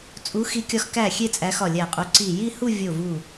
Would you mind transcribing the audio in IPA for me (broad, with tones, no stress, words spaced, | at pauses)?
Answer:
t͡sʼu˨˦xi˨˦kʲɒ˨˦x kæ˧˩ xʲe˥˧t͡sʼæ˨˦ xɒ˧˩lʲæ˧˩qʼu˨˦ ǀi˧˩ ji˥˧hu˥˧ vʲo˧˩vu˧˩